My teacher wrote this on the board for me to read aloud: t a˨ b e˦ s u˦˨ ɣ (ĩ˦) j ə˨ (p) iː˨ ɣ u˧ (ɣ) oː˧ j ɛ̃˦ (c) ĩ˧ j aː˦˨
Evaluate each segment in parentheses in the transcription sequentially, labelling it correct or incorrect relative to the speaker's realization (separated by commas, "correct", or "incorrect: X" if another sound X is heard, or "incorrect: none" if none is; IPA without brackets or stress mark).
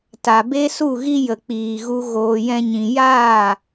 incorrect: i˦, incorrect: k͡p, correct, incorrect: ɲ